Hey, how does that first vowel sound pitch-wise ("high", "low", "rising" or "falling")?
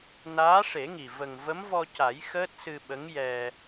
rising